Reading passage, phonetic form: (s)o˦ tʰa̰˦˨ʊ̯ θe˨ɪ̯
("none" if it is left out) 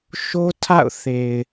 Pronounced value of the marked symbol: ʃ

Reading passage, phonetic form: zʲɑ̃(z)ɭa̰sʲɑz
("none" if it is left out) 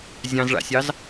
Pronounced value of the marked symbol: z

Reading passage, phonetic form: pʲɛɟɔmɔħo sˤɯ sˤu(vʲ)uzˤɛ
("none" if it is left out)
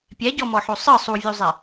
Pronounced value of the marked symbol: vʲ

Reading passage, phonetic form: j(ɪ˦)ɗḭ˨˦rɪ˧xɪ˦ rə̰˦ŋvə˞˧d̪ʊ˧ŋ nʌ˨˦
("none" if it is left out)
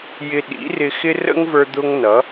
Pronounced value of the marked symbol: ɪ˧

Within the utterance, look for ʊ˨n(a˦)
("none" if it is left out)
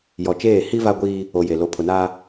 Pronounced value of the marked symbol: aː˦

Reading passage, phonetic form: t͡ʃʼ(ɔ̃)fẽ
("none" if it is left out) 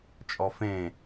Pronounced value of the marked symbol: ɔ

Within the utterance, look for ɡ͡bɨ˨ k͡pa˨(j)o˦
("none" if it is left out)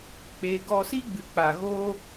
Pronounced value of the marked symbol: ɣ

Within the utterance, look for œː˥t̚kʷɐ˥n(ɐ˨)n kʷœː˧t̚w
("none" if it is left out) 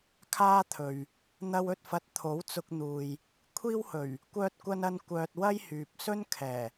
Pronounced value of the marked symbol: ɐ˥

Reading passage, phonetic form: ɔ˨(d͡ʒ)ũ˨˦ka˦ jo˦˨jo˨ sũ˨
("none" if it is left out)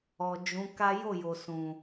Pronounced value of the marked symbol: d͡ʒ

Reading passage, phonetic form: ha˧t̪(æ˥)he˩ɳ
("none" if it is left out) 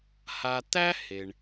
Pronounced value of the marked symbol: æ˥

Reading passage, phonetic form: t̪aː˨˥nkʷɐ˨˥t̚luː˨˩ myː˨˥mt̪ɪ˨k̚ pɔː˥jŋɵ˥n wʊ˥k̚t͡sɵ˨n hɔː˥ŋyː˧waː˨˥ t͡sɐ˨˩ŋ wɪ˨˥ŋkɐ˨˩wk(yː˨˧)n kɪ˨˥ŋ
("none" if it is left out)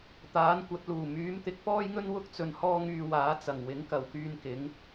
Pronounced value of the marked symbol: yː˧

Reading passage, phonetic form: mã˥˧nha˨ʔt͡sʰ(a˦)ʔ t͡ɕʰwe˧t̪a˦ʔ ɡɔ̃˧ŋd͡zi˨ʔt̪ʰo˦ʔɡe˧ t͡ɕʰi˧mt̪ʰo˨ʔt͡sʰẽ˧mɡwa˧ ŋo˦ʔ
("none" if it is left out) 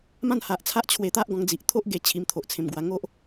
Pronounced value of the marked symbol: a˦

